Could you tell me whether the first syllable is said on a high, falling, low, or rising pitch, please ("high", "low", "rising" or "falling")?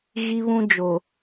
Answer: high